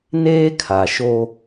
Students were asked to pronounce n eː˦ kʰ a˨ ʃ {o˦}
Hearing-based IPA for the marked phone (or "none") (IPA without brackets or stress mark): o˦